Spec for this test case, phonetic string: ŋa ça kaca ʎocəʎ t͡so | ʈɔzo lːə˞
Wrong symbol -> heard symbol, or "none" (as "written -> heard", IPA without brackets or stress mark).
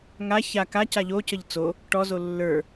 none